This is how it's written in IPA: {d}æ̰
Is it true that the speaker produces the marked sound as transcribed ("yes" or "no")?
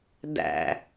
yes